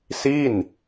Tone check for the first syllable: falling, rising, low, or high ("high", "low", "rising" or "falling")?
falling